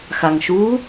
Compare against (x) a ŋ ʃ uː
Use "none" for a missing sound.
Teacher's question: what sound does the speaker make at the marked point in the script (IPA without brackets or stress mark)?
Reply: x